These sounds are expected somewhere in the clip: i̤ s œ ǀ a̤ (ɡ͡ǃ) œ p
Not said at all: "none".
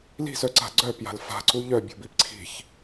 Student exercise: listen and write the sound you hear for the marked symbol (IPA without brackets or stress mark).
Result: ɡ͡ǀ